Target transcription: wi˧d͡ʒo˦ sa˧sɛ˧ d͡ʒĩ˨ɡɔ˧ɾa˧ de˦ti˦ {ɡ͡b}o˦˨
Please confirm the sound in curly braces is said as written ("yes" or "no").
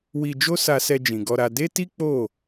no